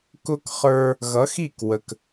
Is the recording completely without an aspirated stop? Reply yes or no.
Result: yes